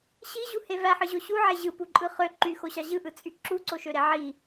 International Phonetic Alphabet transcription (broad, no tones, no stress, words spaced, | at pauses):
ɕiʑuhe væħɯʑo ɕuʕe ʑɯpuǃʼɯ χø ǃyxoɕɑ ʑɯʔɯt͡sʼy ǁuǀoʃøɾe ʕi